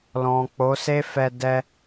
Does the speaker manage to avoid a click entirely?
yes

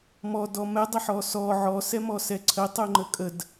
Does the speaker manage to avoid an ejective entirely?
no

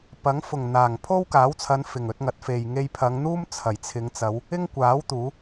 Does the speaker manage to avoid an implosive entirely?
yes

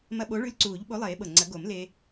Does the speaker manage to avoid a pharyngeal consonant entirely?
yes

